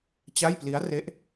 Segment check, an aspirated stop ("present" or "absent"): absent